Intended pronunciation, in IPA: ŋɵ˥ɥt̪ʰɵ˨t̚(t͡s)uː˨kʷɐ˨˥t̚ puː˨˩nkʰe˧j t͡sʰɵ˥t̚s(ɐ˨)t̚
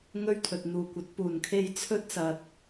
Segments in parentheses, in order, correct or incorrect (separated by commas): incorrect, correct